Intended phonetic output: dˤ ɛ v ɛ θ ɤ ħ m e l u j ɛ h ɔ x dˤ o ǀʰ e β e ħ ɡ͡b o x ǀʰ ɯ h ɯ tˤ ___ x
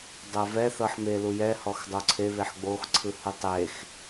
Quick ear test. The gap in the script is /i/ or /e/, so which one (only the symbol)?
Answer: e